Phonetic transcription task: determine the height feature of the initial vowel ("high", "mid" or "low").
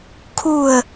high